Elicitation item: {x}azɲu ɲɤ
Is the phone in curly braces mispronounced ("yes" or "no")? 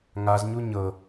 yes